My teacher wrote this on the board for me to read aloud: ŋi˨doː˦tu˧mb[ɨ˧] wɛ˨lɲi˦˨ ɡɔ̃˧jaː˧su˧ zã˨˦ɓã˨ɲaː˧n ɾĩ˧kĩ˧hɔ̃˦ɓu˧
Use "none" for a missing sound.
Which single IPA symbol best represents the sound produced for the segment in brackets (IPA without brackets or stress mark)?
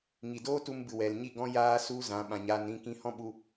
ɨ˨